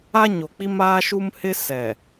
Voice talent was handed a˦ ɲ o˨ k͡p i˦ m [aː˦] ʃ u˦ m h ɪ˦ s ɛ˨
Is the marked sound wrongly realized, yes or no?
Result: no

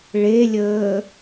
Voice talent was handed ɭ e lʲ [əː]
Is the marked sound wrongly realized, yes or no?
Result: no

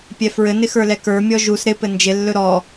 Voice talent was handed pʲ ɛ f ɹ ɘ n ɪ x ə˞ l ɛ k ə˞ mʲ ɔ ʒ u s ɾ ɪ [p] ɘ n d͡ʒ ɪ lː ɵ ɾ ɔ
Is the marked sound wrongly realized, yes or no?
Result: no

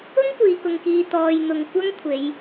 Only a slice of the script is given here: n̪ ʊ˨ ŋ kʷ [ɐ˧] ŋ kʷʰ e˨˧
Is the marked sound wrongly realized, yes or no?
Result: yes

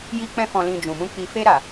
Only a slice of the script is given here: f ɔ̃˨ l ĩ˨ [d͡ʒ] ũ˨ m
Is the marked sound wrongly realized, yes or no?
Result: no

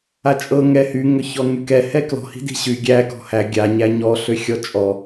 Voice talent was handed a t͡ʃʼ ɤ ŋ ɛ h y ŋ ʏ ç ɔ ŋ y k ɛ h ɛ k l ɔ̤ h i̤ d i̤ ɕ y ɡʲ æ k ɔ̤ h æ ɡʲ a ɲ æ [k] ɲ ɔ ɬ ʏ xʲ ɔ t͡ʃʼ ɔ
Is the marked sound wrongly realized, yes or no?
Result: yes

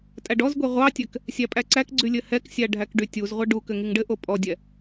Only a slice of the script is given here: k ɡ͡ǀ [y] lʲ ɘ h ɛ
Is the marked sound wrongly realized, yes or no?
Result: no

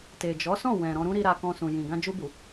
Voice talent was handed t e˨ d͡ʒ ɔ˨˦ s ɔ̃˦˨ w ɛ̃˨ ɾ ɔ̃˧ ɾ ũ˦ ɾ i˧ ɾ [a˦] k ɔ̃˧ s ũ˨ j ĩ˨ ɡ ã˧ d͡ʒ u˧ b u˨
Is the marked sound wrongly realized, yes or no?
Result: yes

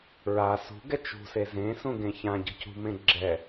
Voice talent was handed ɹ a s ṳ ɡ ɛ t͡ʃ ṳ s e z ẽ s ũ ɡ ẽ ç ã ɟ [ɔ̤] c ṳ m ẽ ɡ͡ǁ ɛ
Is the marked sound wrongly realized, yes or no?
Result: yes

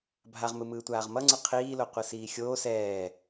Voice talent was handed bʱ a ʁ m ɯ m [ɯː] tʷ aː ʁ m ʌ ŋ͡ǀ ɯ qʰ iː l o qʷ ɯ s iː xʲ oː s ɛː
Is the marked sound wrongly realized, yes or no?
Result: no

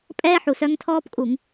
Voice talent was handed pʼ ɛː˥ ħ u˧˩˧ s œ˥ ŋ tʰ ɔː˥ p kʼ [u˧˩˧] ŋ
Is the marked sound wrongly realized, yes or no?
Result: no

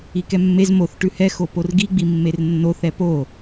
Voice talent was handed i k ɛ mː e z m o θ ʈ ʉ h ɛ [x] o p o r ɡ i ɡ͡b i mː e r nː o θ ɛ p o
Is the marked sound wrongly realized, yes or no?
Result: no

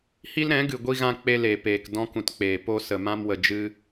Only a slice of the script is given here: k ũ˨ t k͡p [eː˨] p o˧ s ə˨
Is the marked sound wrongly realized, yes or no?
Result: no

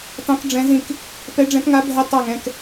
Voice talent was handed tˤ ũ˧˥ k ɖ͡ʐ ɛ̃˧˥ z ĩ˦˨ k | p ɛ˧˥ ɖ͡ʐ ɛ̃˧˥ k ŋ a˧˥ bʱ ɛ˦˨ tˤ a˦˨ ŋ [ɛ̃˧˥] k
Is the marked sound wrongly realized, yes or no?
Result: yes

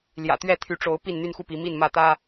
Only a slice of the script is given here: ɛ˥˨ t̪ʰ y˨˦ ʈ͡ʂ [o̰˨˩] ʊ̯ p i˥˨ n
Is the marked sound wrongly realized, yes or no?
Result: yes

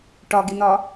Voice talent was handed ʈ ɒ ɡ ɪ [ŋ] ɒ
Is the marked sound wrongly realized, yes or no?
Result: yes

